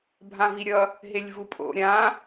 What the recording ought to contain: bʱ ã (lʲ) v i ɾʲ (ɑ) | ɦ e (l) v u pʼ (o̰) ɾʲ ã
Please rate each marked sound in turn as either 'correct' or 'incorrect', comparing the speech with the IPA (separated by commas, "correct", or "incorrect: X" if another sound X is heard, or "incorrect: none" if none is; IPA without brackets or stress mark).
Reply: incorrect: none, incorrect: ʌ, incorrect: lʲ, correct